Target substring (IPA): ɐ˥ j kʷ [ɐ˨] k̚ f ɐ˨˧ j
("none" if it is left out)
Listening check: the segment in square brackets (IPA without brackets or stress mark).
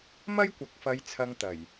ɐ˨